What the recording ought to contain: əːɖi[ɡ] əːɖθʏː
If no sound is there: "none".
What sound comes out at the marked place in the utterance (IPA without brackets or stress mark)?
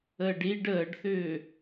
ɖ